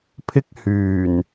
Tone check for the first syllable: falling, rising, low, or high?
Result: high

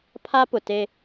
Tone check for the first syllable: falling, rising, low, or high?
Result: high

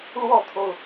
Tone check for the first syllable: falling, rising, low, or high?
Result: falling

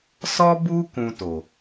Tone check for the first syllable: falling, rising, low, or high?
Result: high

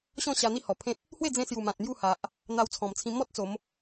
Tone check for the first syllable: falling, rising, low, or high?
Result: falling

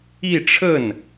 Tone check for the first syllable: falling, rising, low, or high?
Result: falling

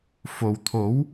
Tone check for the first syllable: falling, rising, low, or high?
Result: low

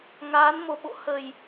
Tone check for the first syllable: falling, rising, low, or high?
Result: rising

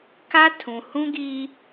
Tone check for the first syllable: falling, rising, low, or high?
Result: high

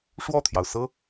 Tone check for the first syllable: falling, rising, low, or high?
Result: falling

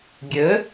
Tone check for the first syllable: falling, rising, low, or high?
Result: rising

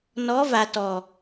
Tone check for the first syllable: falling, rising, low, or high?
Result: rising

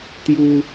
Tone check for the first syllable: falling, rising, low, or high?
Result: high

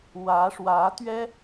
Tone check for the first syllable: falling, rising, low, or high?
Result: rising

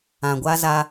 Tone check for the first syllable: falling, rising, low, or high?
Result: low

